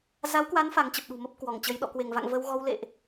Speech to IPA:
z a˨˦ w k w a˨˦ n f a˨˦ ŋ t͡ɕ ə˨˩ p̚ ɗ ṳ˨˩ m ə˦˥ p̚ k w ɔ˧˩ ŋ t͡ɕ ə˨˦ j ɗ ɔ̰˧˨ k w e˧˩ ŋ v a̰˧˨ ŋ v ə˧ w ɣ ɔ˧ w l ḛ˧˨ ʔ

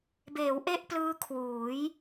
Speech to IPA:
b eː˩˦ w ʔ e˥˩ ʔ p l ɯː˦˥ kʰ w uː˩˦ j

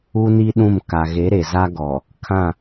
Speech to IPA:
u˦ n i˦ ɗ ũ˦˨ m k a˨ ɣ e˨˦ ɾ e˨ z a˦ ɡ ɔ˨ | kʰ ã˦˨

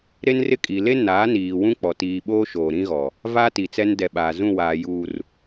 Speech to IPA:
ɾ e˦ n r ɪ˦ kʼ i˨ l e˦ n aː˨˦ n iː˨ w ũ˦ k͡p ɔ˨ t iː˨ ɓ oː˦ ʃ oː˨ ɾ ĩ˦ ɣ ɔ˨ | v a˦ t i˨ t͡s ɛ˦ n d ɛ˨ ɓ aː˨ z ũ˦˨ w aː˨ j uː˨ r

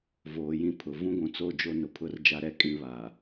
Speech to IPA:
v oː˨ j ĩ˦ pʰ ʊ˨ v ũ˦ ɡʷ ũ˨ t͡s o˦˨ d͡ʒ o˦ n ʊ˨ pʰ ʊ˦ r d͡ʒ a˦ ɾ ɛ˦ kʼ ĩ˨ β a˨

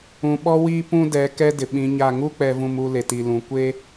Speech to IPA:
ũ˨ ɓ ɔ˦ w iː˦ p ũ˦ d ɛ˨˦ k ɛ˦ d ɪ˨ ɓ ĩ˨˦ ɲ a˦˨ ŋ u˦ k͡p ɛ˨ v ũ˨ m u˨ l e˨ t i˨ l ũ˨ kʷ e˦

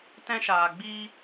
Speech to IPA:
t ɛ̃˦ ʃ aː˨ ɡ͡b iː˦

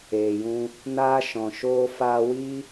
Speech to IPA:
eː˨ j ũ˧ | n aː˦ ʃ ɔ̃˨ ʃ oː˦ f aː˧ w i˦

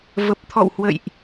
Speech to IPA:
v ə˨˩ p̚ t̪ʰ ɔ̰˧˨ w h w ə̰˧˨ j ʔ

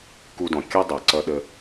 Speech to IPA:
k u˧ d ɔ̃˩ kʲ ʌ˥ dˤ ɛ˩ ǀ ʌ˧ ɗ ə˧

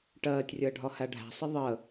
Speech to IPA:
ʈ ɜː tʲ rʲ əː ɖʱ ɒ h æ ɖʱ æ̤ sˤ ə ðˤ əː

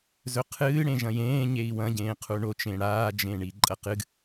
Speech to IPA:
z ɵ qʰ ɨː ɽ ẽ ʒ ɐ̃ j ẽː ɲ e i̯ w ɐ̃ ɟ ẽː qʰ u ɳ o t͡ʃ ẽ ɽ aː d͡ʒ ẽ ɳ i ǃʼ ɐ q ɨ ɡ

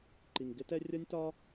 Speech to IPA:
ǃ i˩ ŋ ɡ ɪ˥ t ɛ˥ rʲ ʌ˥ nʲ t ɒ˥

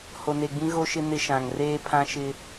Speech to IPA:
h o˨ n e˨ ɡ͡b ĩ˦ ɣ o˦ ʃ ɪ˦ n ɪ˦ ʃ ã˨ ŋ r eː˦ pʰ ã˦ ʃ ɪ˦

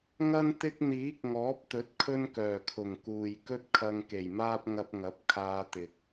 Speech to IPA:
ŋ ɐ˥ n t̪ ɪ˥ k̚ n̪ iː˨˥ k̚ ŋ ɔː˨˥ p̚ t̪ ɵ˨˥ t̚ kʰ ɵ˥ n k œː˨˩ kʰ ʊ˨˩ ŋ k uː˨ j k ɵ˥ t̚ kʰ ɐ˧ ŋ k e˨˩ j m aː˥ p̚ ŋ ɐ˧ p̚ ŋ ɐ˨˥ p̚ kʰ aː˧ t̪ ɪ˨ k̚

